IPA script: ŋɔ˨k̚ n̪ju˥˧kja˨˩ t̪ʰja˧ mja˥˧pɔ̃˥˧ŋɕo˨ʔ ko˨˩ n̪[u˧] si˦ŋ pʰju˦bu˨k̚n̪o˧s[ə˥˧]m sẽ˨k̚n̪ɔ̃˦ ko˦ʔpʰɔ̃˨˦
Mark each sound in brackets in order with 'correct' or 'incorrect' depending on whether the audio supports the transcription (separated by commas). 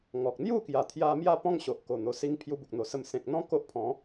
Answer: incorrect, correct